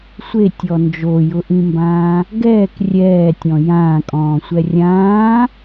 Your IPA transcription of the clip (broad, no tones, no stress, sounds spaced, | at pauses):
sʷ e tʲ ɔ n d͡ʒ o j ʊ ʔ ĩ m b ãː | ɡ ɛː k rʲ ɛː tʲ ɔ̃ j ãː kʼ ɔ̃ː sʷ ɛ rʲ ãː